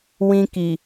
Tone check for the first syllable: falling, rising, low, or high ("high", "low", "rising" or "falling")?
high